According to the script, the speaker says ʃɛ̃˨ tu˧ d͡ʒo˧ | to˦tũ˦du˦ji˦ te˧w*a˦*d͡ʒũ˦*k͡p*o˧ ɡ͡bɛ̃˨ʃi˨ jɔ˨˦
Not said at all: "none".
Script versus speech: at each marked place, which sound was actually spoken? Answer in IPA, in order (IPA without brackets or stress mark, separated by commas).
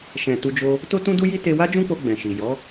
a˦, k͡p